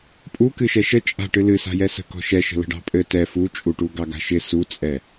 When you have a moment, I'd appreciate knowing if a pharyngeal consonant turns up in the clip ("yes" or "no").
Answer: no